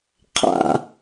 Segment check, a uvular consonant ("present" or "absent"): present